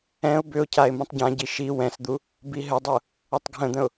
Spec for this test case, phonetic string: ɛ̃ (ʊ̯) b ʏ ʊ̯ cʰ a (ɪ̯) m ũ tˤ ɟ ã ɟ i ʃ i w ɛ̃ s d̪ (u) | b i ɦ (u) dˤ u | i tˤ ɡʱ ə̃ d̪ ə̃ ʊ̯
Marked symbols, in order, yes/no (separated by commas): yes, yes, yes, no